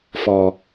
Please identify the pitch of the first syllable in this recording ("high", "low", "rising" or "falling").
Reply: low